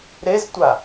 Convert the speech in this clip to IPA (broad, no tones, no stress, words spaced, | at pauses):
ɾeztʷa